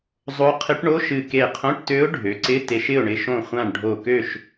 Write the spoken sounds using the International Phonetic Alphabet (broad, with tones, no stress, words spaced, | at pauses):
zˤo˧˥ qʰɪ˧˥ʈɳo˧˥˧ ʃɨ˧˩ ke˧˩qʰõ˧˥˧ʈtø˧˥ʊ̯ ɖʱø˩˧ǀɪ˧˥˧ te˧ʃɪ˥˨ʊ̯ɳɪ˧ ʃõ˧˩χʷã˧˩ɳ ɖʱo˧˩kø˥˨ʃ